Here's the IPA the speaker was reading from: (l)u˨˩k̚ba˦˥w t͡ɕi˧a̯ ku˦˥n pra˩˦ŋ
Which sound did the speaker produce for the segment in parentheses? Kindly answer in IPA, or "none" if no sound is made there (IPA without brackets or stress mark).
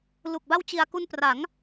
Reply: l